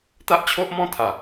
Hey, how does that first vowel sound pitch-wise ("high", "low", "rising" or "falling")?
high